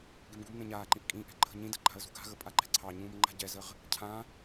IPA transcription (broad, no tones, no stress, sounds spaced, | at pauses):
ɡ e m ɡ u m n ẽ ɲ aː ǃ ĩ ʔ kʼ ĩ ʔ ɛ̤ ǃʰ ə̤ ɲ ĩ d ə ǃ a̤ ə̯ z ṳ ɡ a̤ ɣ ə pʼ a ǃ ɛ̤ ǀʰ ɑ ɲ ũː m ŋ͡ǃ a̤ ɟ ɛ z ə ʁ | cʰ ã